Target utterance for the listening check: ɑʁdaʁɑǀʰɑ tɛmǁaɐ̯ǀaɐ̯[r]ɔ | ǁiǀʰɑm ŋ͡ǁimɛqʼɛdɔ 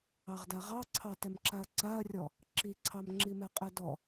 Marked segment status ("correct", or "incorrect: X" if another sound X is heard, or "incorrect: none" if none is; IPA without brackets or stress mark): incorrect: rʲ